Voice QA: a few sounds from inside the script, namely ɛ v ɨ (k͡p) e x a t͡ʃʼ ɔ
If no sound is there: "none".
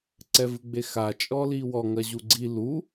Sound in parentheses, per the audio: ɡ͡b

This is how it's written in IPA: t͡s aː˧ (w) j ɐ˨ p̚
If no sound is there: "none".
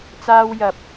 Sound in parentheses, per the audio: w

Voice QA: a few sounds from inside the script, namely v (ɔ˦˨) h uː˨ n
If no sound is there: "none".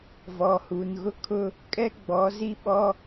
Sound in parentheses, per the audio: ɔ˨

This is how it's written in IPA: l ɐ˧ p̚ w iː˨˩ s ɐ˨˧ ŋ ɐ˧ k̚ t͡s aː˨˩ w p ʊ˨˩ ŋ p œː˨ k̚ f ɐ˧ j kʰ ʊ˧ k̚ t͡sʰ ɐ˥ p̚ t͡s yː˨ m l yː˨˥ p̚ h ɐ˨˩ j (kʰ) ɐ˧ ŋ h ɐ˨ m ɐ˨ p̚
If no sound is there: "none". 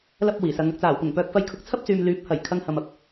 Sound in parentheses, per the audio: kʰ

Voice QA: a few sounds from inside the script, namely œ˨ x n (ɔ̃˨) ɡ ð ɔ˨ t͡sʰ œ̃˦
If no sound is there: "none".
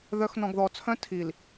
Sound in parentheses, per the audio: ɔ̃˨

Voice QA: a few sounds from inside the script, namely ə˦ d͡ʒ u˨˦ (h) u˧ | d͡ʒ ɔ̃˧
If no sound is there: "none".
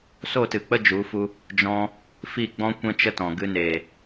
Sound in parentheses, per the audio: f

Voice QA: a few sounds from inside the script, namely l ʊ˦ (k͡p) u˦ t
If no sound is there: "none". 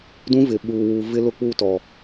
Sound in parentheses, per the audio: k͡p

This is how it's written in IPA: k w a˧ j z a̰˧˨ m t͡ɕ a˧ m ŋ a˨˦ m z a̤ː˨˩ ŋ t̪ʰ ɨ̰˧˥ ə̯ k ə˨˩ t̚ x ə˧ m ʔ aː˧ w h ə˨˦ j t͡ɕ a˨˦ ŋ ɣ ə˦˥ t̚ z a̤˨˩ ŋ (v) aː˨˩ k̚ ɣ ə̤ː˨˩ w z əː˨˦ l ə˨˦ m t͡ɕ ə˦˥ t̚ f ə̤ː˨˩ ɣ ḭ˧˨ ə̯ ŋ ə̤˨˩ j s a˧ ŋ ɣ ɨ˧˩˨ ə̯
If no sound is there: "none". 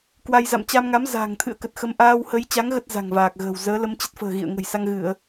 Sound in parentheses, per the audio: v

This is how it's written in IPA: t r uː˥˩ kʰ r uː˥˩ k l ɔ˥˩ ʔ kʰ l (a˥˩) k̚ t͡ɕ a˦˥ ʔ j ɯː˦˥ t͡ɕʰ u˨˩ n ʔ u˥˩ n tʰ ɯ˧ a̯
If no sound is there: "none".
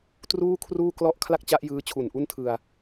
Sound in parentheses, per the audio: a˥˩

